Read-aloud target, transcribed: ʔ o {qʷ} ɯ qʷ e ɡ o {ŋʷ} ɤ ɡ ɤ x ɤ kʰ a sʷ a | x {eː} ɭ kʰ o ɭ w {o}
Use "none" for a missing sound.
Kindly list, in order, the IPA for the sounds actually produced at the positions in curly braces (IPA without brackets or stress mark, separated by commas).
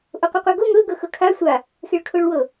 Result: qʷ, ŋ, e, ɤ